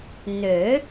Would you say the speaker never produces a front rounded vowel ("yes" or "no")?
no